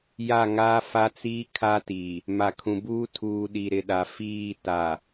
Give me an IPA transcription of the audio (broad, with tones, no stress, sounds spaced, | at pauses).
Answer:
j a˦˨ ŋ aː˦ f a˦ t͡s iː˦ kʰ a˦ t iː˨ | m a˨ kʰ ũ˨ b uː˦ tʰ uː˨ ɗ i˨ ɾ ɪ˨ ɗ a˨ f iː˦˨ t a˨